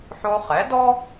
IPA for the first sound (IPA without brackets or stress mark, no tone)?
ħ